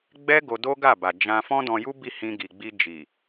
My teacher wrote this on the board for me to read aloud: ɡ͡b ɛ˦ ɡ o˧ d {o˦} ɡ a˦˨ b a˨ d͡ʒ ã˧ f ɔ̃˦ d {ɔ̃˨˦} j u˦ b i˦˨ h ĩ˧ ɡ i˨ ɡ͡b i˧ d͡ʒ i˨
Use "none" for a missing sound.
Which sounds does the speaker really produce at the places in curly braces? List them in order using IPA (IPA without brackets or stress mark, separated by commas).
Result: o˦, ɔ̃˧